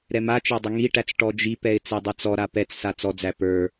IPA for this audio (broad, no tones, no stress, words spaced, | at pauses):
ɾɛmat͡ʃæ dˤəŋiʈæt͡s ʈɔd͡ʒipɛɪ̯ t͡sedˤɛt͡sɔɾa pɛt͡ssa t͡sɔd͡zæ pə˞